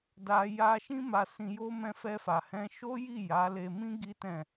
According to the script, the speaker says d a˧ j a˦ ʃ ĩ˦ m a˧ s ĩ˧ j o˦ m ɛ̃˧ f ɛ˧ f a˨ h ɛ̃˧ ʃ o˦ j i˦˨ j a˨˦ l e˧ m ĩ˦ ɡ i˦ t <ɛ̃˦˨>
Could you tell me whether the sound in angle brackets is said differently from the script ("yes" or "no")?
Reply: no